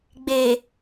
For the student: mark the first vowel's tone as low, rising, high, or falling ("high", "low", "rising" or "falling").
low